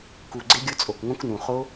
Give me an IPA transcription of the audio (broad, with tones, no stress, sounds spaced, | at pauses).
k u˨˩ ɡ͡ǀ ɪ˦˥ ɡʲ ʊ˦˥ t͡sʼ o˨˩ k ŋ õ˦˥ k n ũ˨˩ χ o˦˥